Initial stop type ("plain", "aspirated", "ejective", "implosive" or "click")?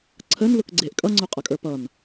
click